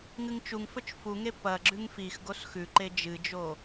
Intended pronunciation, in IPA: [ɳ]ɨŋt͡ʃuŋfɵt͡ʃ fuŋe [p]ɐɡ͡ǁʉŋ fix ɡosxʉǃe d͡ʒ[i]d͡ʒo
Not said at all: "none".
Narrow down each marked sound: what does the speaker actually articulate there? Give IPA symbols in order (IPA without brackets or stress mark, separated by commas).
ŋ, p, ɨ